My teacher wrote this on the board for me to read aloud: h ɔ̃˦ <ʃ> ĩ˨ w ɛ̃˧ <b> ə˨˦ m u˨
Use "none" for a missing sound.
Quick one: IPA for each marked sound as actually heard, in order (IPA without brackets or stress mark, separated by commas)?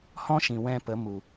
ʃ, p